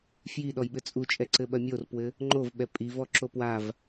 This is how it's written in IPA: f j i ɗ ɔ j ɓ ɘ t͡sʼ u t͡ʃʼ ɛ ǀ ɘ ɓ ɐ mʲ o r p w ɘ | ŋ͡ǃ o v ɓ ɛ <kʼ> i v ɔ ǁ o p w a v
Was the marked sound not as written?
yes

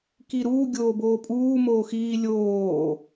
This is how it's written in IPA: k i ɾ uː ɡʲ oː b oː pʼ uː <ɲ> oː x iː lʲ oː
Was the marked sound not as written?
yes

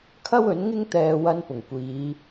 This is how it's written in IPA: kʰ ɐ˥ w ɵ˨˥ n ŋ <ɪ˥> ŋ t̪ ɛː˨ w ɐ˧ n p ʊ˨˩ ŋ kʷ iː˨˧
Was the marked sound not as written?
no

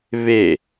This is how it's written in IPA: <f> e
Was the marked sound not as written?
yes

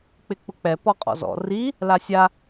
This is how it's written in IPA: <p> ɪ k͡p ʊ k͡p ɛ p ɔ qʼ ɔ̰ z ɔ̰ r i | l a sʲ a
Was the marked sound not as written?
yes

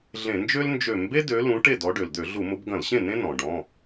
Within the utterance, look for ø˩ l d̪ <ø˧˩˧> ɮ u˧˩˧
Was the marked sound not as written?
no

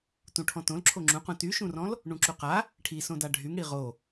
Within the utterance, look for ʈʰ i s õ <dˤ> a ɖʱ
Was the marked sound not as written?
yes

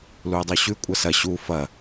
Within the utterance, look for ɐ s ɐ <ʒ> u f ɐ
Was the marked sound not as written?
yes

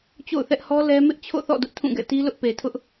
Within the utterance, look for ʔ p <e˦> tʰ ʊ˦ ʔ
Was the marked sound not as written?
yes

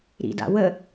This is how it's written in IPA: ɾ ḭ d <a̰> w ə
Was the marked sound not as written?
no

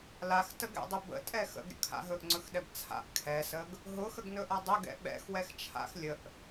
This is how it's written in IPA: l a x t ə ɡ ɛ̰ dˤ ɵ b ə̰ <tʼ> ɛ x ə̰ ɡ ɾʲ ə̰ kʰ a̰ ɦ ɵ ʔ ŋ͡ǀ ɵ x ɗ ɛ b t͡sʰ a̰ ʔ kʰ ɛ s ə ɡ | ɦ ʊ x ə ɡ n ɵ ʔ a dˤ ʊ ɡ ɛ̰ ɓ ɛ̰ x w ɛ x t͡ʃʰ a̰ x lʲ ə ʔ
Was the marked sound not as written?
no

